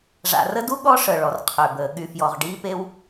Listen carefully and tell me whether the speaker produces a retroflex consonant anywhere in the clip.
yes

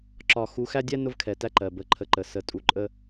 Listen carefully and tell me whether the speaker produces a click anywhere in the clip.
yes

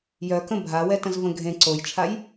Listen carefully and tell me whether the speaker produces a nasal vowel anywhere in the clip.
yes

